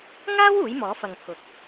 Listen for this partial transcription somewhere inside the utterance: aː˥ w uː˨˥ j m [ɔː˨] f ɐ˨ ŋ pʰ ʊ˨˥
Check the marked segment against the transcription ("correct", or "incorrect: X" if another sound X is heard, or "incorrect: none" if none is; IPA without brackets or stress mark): incorrect: ɔː˨˥